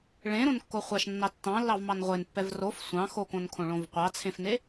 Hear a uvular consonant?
yes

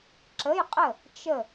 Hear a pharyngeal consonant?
no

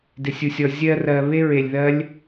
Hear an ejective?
no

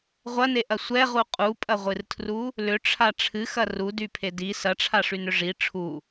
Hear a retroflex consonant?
yes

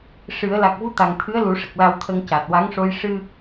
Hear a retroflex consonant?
yes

